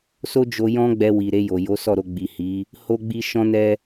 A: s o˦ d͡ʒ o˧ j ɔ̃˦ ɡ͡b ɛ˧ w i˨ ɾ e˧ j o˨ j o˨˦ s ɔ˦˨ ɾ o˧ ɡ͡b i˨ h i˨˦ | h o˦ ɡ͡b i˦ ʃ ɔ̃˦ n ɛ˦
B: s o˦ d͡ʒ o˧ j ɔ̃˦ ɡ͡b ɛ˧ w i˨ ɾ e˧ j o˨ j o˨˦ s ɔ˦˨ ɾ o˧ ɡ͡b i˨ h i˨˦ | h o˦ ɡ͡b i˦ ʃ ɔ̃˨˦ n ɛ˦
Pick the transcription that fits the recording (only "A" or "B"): A